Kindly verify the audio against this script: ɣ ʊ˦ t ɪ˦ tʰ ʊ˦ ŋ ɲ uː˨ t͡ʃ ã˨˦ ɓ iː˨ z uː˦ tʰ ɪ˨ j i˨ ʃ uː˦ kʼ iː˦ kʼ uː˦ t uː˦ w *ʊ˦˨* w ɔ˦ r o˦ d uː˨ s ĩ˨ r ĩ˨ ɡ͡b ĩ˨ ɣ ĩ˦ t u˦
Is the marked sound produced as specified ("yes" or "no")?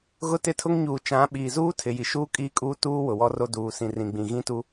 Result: no